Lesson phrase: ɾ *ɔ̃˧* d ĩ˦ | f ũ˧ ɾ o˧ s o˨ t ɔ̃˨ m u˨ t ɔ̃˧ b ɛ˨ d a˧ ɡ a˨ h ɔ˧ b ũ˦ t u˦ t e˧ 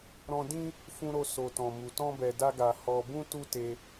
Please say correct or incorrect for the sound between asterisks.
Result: correct